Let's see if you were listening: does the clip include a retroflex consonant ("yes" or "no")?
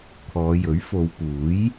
no